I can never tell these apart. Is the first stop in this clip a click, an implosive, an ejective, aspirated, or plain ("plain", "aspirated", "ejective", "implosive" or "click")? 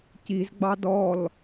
plain